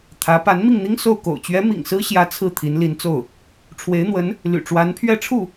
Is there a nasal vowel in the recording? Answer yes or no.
no